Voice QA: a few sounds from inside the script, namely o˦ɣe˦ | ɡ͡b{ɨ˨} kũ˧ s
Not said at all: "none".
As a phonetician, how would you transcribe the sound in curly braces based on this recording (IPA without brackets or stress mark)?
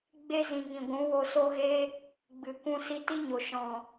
ɨ˨